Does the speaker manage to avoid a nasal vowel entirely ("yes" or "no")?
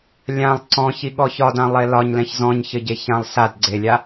no